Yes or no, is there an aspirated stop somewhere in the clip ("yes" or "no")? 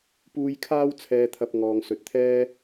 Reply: yes